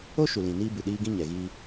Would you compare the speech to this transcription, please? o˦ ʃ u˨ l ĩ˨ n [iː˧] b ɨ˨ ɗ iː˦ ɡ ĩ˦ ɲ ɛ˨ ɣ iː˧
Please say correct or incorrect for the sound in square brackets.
incorrect